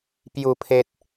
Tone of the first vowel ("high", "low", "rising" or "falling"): low